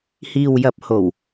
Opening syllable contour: low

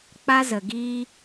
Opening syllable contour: high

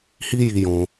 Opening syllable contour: high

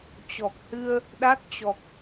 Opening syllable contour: low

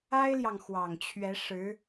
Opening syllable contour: high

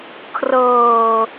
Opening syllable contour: low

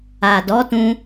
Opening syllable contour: low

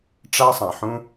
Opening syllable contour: high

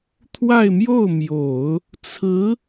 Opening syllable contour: falling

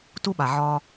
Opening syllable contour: high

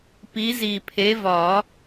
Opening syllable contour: rising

